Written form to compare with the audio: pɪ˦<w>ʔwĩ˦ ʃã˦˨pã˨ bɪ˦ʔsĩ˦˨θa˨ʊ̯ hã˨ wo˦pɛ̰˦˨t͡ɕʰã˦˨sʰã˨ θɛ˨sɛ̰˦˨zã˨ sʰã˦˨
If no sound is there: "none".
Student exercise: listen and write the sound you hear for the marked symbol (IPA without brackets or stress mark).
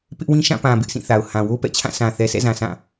none